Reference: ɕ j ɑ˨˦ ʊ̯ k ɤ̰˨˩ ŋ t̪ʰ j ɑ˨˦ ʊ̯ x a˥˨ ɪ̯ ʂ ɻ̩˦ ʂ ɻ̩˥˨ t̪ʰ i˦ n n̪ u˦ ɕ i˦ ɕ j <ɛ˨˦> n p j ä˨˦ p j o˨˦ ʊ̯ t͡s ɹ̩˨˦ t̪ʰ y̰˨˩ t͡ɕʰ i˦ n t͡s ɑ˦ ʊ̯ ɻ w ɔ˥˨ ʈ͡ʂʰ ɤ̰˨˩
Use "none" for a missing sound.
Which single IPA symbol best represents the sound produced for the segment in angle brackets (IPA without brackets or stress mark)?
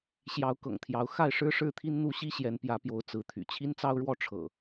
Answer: ɛ˨˦